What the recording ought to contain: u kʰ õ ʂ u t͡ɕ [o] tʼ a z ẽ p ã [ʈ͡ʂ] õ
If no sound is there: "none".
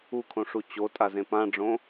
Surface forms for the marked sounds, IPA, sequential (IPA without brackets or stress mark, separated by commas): o, ɖ͡ʐ